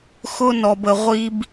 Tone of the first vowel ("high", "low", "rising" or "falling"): high